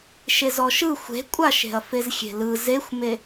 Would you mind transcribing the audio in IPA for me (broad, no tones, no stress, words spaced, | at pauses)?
ʃezɔʃɯ xʷe̤kʷʼaʃe̤ɐ̯ fezxʲe̤lɯ zexʷme